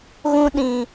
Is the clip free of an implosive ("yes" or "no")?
no